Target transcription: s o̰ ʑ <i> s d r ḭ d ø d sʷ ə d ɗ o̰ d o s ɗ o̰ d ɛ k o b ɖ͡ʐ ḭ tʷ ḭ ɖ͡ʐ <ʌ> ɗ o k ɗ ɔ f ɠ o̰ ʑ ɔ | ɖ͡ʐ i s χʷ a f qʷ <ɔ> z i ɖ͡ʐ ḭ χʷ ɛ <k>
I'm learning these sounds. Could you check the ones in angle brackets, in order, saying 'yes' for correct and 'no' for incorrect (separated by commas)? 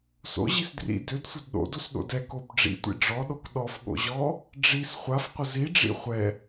yes, no, no, no